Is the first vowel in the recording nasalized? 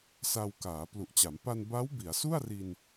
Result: no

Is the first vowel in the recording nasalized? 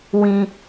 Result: yes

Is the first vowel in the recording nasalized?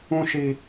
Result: yes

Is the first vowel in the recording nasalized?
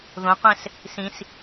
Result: yes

